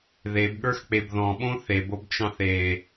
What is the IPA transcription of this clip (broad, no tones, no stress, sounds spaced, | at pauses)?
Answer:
ð e b ɠ ə˞ x k͡p e b ð ɔ̃ ɓ õ θ e b o b t͡ʃ ɑ̃ θ e